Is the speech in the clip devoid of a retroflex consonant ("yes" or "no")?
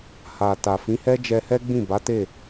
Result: yes